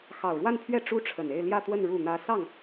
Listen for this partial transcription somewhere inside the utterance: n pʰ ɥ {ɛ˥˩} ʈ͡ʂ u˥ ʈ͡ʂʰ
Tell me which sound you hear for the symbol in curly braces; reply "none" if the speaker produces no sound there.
ɛ˥˩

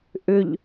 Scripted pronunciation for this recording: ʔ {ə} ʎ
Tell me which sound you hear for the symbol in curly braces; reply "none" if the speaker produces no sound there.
ʏ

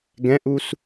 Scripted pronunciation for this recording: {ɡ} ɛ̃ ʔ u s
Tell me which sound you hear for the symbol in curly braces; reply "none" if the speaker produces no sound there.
ɡ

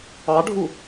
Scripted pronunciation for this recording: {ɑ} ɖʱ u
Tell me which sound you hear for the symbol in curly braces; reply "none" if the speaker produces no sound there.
ɑ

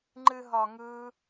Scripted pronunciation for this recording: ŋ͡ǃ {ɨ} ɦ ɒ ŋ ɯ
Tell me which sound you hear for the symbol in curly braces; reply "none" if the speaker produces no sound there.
ɨ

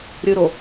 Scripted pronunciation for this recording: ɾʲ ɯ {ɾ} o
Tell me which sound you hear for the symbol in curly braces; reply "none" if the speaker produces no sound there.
ɾ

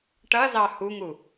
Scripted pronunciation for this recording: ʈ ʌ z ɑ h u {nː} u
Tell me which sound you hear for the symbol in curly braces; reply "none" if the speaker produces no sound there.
ŋ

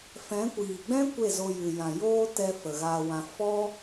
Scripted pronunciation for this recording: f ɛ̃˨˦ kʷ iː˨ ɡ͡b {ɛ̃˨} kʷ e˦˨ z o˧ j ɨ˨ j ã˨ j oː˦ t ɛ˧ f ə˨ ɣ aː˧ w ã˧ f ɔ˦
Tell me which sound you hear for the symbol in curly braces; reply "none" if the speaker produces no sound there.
ɛ̃˦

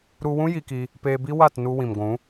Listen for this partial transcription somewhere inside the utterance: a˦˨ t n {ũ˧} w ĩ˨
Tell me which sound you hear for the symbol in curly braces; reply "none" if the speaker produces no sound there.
u˧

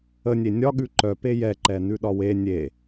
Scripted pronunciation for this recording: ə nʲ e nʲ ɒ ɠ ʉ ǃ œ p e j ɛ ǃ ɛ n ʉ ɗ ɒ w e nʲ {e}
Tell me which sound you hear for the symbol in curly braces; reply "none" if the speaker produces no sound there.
e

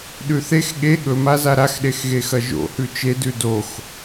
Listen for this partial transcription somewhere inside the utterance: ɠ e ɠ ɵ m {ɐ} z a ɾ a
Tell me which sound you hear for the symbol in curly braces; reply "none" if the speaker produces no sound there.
a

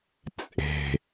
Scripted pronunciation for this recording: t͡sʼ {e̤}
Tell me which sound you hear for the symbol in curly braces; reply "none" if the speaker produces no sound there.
e̤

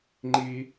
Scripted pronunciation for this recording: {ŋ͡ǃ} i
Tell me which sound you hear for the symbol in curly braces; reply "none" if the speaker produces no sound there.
ŋ͡ǃ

